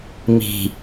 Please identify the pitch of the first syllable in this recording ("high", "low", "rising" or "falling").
low